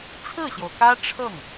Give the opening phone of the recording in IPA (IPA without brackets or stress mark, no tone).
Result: t͡sʰ